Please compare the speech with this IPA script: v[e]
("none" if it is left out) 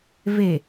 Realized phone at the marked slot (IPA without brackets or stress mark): e